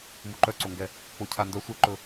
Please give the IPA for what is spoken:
muǃœǀoŋɡɛ | k͡pocʰandœ sʷɛǃɵ

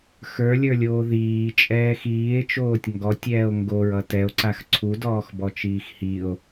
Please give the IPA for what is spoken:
xə˞lʲə˞lʲoː ðiːt͡ʃʼɛːx iːe̯t͡ʃoːtʲ ŋɡɔtʲɛːo̯ ŋɡoɹʌ tɛo̯ǀax ǀʰudɔːxbɔt͡ʃiːx hio̯

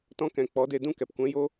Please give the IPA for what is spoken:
tɔ̃˧kɛ̃˨k͡pɔ˨˦ de˧dũ˦˨kɛ˨p kʷɛ̃˧ jo˦

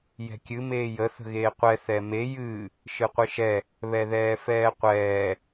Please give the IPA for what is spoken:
jɛ̤kʲɨ meːjə θə̤ɣeːqʷɛ θɛme jɨː | ʃɨqʷɨʃɛ | βɛðɛːfɛːqʷɛː

